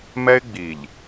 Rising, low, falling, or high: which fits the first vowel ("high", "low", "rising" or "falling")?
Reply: high